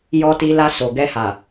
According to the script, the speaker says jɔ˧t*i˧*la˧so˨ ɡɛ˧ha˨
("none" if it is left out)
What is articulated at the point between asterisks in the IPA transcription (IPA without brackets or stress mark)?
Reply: i˧